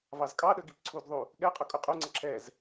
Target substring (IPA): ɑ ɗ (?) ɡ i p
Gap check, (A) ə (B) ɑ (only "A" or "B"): A